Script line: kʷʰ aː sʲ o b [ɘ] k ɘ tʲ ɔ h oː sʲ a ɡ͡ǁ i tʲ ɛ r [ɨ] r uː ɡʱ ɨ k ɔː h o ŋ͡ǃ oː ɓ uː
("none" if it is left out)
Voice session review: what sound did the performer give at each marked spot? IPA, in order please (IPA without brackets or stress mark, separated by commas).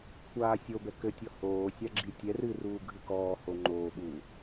ɛ, ɨ